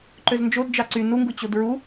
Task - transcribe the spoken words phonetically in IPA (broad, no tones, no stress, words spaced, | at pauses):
ǃøznd͡ʒod d͡ʒɑǀy nuŋɡu t͡ɕodɹu